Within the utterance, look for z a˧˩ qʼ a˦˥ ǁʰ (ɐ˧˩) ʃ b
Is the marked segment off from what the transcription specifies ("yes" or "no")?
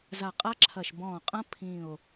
no